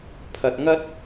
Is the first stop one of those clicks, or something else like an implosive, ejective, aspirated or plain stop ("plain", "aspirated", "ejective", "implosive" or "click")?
aspirated